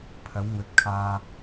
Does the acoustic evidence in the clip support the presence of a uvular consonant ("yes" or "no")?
no